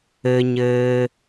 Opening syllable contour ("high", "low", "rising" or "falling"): low